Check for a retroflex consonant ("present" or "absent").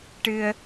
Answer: present